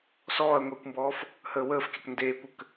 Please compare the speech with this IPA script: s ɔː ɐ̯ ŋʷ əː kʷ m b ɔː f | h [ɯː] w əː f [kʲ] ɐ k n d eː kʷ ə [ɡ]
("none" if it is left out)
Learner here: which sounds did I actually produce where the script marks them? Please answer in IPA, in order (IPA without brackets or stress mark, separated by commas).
əː, kʲ, k